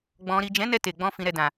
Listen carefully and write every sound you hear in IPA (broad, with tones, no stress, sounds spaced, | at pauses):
ɡ͡b ɔ̃˨ ɾ i˨ d͡ʒ ɛ̃˨˦ n ɛ˧ t e˨ ɡ͡b ɔ̃˧ f ĩ˨ ɾ ɛ˨ d ã˨